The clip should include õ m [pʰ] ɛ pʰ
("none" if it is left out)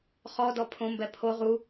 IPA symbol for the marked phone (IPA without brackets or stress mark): b